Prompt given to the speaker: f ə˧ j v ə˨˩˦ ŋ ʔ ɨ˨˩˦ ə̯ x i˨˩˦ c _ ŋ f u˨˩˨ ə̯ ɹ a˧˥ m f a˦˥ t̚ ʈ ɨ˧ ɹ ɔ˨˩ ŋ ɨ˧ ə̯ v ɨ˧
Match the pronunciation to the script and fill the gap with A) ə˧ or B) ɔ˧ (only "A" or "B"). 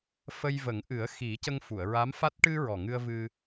A